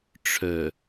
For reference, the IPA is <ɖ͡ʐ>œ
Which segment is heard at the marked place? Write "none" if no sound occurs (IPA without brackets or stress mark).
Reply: ʈ͡ʂʰ